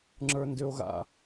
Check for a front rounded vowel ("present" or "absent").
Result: present